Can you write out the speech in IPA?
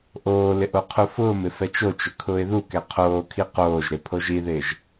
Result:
ʔ oː l ɪ ʔ o qʰ u f ʊː m ɪ f ɛ t͡ʃ o t͡ʃ ʊ kʰ ʊː ɪ̯ ð u k ɛ qʰ oː kʰ i q oː ʒ ɾ e pʰ o ʒ i ð ɪː ʒ

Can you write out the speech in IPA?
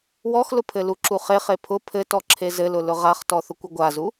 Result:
w ɔ x l ʊ pʰ ɘ l u ǁ u χ e χ e pʰ ʊ pʰ ɘ t ɔ ǁʰ e z ɘ l ʊ l ʊ ʁ a χ t ɔ θ ʊ kʷ ʊ ɡʷ a z u

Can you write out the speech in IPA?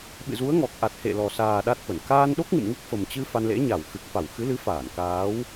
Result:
ɓ ɨ̰˧˨ z u˨˦ ə̯ ŋ ɔ˨˩ k̚ ʔ a˨˩ t̚ h ḛ˧˨ l ɔ˨˩ s aː˨˩ ɗ a˦˥ t̚ f ə˧˩ n k aː˧ n ɗ o˦˥ k̚ ŋ ɨ̰˧˨ m ŋ u˦˥ k̚ f ə˨˩ m t͡ɕ ɨ˧ f a˧ n l ḛ˧˥ ɲ a˧˩ w x ɨ˨˩ k̚ f a˧˩ w x ɨ˨˦ l ɨ˨˦ f aː˧˩ n k aː˨˦ w

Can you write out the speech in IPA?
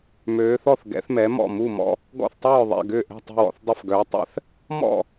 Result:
m øː˨˦ θ ɔ˦˨ θ ɡ ɛ̰˨˦ θ m ɛ˨˦ m ɔ̰˦˨ m u˦˨ m ɔ̰˦˨ | ɡ ɔ̰˦˨ θ tˤ œː˦˨ ðˤ ɛ̰˦˨ ɡ ʏː˦˨ ʔ ɛ̤˦˨ tˤ ṳ˦˨ w ɔ̰˦˨ θ dˤ ʏ˦˨ f ɡ œː˨˦ tˤ ɛ̰˦˨ θ | m ɔ̰˦˨

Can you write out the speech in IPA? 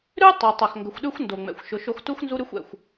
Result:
ɾ ʉ˥ tˤ o˩ tˤ a˩ x ŋ ɡ ə˩ xʷ ɗ ʉ˥ xʷ n d o˩ ŋ͡m ɛ̰˩ xʷ ʃ ʊ˩ ʃ o˧ x t u˥ x n z u˥ ɾ ʉ˥ xʷ ɛ̰˩ xʷ

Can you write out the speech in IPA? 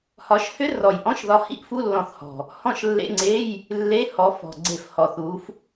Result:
h ɒ˨˦ ʃ h ʏ˦˥ r ɔ˨˩ j ʔ ɔ̃˧˥˧ ʃ ð ɒ˨˦ h ḭ˦˥ ʔ f u˧˥˧ lː ɔ̃˧˩˧ θ h ɔ̤˨˩ | h ɔ̃˦˨ ʃ lː ḛ˧˥˧ ŋ͡ǀ e˧˥˧ j | lː e˧˥˧ h ɔ˨˦ f ɔ̤˨˩ ɡ͡ǀ e˧˩˧ f h ɔ˨˩ θ u˨˦ f

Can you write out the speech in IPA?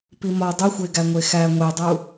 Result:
p i m ɒ dˤ u xʷ e ɡ æ ŋʷ e x æ ŋʷ e dˤ u

